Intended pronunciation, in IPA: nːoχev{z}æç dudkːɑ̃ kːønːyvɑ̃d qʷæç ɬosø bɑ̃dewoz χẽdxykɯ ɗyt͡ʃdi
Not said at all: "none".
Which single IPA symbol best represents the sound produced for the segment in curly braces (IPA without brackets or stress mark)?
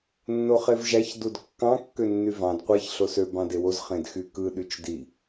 ʒ